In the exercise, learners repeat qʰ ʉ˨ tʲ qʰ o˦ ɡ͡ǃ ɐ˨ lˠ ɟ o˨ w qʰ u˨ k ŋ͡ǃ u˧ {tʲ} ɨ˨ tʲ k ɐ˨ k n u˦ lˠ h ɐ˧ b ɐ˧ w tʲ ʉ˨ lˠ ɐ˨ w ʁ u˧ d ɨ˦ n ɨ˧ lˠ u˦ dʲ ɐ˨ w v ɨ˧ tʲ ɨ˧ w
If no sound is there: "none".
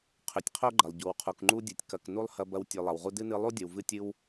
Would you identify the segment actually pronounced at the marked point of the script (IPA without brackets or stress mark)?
dʲ